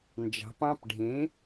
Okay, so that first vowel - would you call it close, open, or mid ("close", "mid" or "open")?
open